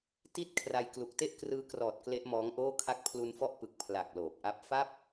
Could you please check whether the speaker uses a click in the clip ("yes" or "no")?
no